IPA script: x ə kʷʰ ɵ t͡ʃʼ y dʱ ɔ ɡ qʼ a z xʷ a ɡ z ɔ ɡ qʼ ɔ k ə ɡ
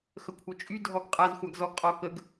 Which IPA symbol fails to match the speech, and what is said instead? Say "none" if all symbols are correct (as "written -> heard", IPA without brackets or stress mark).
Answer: ɵ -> œ